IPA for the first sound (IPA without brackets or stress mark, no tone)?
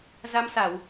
z